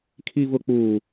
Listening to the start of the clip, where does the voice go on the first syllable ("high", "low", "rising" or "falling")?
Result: low